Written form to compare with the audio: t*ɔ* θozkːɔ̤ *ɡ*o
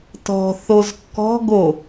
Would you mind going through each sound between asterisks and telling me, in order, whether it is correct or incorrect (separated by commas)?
incorrect, correct